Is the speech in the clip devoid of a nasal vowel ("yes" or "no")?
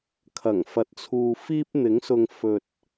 yes